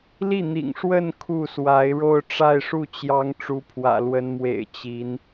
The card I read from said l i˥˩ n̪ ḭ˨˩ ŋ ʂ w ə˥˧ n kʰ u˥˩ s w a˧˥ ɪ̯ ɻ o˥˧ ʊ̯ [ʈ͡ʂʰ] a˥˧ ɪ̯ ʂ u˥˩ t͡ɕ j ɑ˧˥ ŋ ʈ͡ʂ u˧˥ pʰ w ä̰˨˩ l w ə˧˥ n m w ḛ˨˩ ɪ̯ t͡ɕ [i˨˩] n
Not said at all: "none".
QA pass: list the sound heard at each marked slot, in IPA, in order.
ʈ͡ʂ, i˧˥

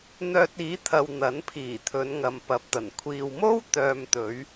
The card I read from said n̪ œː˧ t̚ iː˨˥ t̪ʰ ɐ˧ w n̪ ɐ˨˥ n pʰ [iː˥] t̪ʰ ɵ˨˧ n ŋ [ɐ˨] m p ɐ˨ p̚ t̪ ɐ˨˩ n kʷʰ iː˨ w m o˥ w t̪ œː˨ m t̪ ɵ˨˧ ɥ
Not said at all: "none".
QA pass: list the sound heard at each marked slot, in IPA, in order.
iː˨˩, ɐ˨

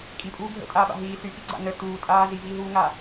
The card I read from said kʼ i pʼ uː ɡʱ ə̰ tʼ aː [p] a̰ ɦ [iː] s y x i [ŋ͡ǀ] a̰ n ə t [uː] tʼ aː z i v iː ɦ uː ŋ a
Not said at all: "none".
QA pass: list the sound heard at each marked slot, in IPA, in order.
ɓ, iː, ɡ͡ǀ, uː

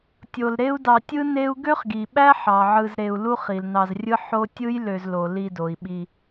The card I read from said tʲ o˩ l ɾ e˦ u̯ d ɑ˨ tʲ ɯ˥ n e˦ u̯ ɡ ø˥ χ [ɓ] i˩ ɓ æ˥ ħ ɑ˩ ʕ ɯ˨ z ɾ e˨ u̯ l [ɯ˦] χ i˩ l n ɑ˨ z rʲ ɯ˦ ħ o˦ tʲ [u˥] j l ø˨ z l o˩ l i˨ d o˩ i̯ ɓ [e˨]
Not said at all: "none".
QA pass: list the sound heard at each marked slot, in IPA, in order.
ɡ, u˦, ɯ˥, i˨

